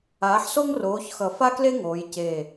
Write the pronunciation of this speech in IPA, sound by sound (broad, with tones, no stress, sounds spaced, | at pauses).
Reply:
aː˨˥ ħ s o˥ ŋ r oː˨˥ ç x ʌ˧˩ f a˥ k l e˥ ŋ oː˩˧ j c e˧˩